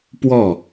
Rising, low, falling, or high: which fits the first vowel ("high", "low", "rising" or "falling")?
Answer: falling